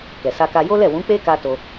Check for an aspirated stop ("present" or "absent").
absent